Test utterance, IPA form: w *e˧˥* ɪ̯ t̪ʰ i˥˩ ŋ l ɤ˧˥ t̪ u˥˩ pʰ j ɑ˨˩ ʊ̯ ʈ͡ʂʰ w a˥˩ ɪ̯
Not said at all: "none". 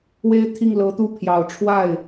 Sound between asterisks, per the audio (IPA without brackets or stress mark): e˥